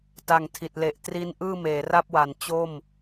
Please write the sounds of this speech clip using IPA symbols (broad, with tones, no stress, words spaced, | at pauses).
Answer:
ta˨˩ŋtʰi˨˩t̚le˨˩ʔ tri˦˥n ʔɯː˥˩meː˩˦ra˥˩p̚wa˩˦n t͡ɕo˥˩m